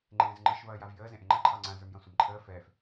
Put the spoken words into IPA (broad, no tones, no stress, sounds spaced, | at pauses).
ŋ͡ǃ ẽː z ŋ͡ǃ ɯ ʃ v ɐː j a v j əː z ẽ ʔ ẽ ŋ͡ǃ ɐ ǃʰ ɑ ŋ͡ǀ ã z ə˞ m j ɐ̃ sʷ e m ǃʰ əː f ɛː f